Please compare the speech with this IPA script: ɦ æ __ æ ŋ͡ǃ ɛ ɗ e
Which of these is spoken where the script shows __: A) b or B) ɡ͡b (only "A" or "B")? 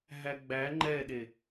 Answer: B